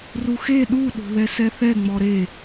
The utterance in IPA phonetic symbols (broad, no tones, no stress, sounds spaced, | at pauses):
r u x e ɗ u ɗ o̤ ð ɛ s ɛ θ ɛ ŋ͡m ɔ ɾ e